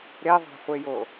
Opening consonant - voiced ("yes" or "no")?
yes